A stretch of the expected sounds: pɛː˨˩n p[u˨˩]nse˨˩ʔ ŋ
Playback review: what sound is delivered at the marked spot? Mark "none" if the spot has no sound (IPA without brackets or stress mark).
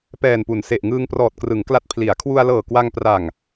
u˩˦